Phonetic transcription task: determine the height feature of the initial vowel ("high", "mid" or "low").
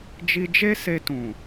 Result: high